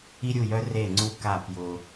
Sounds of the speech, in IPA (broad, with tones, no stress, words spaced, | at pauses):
i˦ɾʲu˦˨jœ˦ re˦˨ŋ͡ǀu˦ka˦˨ pjʊ˦